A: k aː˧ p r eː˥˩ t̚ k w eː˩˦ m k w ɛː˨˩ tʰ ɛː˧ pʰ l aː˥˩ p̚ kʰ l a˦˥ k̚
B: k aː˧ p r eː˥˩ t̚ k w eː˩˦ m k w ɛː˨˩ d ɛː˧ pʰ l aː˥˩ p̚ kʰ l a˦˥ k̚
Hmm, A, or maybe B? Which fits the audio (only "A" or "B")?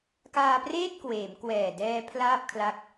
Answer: B